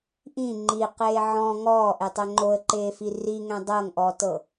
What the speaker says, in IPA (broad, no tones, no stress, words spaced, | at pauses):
ʔĩ ŋ͡ǃiqeː ʕɔ̃ ŋɔːʔetˤɛ ŋ͡ǃoə̯ǃeːfi riŋɛ̃ dˤɤŋʔɔtɤ